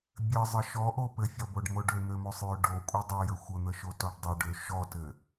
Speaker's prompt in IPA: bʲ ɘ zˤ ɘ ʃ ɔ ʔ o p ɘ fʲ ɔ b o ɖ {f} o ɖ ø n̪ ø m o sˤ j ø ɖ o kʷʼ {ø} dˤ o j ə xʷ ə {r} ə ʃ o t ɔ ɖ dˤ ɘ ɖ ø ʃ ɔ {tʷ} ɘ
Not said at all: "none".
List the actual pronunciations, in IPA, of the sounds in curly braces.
m, ɘ, n̪, t

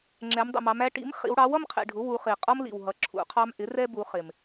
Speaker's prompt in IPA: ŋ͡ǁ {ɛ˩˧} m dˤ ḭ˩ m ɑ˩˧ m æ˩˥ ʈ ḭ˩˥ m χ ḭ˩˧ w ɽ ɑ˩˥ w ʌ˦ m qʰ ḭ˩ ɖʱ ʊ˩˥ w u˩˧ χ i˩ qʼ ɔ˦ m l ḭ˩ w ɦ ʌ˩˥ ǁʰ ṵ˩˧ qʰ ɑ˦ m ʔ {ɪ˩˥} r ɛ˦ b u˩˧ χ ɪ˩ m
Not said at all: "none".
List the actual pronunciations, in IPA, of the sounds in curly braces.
ɛ˩˧, ɪ˩˥

